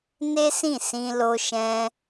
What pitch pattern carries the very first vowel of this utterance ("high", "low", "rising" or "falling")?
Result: high